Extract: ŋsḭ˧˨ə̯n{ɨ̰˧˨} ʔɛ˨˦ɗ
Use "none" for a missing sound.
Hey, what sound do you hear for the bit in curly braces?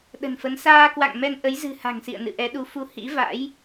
ɨ̰˧˨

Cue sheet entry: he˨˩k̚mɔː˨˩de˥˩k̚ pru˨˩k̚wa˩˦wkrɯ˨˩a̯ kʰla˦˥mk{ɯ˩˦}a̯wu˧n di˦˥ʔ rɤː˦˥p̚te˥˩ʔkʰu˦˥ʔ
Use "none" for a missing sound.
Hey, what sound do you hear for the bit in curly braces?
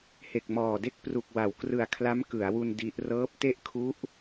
ɯ˩˦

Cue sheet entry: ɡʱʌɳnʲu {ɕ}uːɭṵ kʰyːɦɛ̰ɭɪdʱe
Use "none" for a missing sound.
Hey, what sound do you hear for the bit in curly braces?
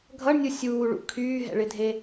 sʲ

